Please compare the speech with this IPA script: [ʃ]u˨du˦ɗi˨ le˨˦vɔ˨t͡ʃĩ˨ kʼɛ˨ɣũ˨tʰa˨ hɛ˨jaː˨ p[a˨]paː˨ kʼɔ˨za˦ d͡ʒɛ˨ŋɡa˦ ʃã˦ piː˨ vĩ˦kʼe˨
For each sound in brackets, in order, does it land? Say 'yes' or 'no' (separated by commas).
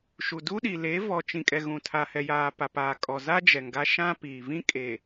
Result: yes, yes